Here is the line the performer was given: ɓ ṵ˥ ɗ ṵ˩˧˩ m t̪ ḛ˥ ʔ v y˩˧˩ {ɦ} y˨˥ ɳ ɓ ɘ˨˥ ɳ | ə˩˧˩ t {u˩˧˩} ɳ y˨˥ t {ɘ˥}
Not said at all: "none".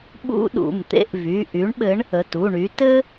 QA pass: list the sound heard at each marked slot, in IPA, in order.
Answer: ʔ, u˩˧˩, ɘ˥

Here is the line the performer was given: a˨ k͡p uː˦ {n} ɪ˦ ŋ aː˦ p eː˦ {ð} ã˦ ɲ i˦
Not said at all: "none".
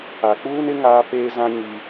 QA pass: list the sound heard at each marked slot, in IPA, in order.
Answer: n, z

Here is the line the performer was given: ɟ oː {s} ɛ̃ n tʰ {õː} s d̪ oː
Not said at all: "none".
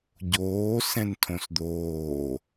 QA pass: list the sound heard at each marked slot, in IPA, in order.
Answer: s, õ

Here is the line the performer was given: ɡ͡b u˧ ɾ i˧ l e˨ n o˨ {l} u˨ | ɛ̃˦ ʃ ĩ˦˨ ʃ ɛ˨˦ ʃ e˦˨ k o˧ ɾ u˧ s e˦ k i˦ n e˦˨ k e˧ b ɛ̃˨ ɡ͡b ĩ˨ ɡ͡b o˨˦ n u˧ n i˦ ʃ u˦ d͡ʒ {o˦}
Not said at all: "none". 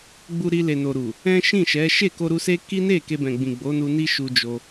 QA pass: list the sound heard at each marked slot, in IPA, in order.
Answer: ɾ, o˦

